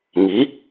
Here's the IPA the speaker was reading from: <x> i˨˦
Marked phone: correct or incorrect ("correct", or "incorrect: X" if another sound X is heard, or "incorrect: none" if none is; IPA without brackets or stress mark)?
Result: incorrect: ŋ